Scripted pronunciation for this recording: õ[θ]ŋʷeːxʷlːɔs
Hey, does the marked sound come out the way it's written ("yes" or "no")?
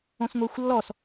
no